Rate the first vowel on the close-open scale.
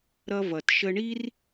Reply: mid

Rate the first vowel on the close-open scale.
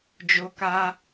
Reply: mid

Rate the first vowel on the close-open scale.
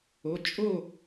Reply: mid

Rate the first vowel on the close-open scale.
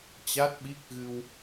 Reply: open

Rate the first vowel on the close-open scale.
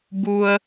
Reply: close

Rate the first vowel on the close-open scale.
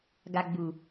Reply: open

